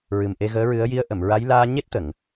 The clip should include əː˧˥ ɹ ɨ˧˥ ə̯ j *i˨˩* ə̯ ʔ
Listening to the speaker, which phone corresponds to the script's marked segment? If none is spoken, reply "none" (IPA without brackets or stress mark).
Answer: i˧˥